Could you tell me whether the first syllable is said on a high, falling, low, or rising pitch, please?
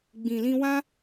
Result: low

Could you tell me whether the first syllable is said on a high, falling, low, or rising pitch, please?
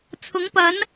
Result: rising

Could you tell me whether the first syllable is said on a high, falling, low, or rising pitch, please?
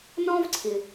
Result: high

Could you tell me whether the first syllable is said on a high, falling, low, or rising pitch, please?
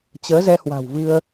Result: rising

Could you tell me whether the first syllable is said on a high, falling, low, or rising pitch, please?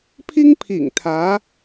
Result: high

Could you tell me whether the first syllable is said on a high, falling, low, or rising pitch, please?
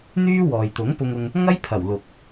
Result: high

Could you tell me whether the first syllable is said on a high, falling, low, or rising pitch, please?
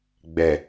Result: low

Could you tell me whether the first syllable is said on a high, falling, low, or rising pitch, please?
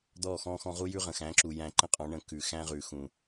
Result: falling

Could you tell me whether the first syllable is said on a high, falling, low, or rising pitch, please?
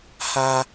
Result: high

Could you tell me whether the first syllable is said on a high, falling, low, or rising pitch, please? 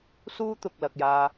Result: high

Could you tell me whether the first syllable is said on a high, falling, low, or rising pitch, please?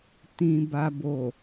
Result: low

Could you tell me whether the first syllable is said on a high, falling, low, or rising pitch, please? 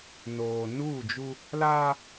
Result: low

